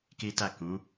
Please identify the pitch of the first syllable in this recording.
high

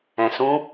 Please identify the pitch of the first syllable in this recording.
low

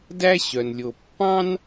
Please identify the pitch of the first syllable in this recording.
high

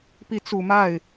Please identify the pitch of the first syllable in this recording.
rising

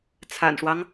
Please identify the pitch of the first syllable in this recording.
low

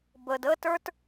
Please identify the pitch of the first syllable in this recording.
low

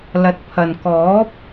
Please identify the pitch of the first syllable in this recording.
low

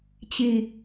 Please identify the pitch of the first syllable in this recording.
low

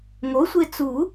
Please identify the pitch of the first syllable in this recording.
rising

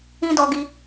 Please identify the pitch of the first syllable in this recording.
high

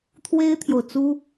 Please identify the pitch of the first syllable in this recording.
high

